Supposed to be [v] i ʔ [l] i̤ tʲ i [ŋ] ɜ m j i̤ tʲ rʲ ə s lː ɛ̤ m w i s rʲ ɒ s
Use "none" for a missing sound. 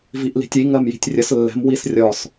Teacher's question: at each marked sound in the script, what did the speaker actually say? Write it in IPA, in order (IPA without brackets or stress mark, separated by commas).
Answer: v, l, ŋ